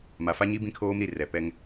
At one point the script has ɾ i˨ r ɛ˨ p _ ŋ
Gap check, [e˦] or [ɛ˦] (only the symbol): ɛ˦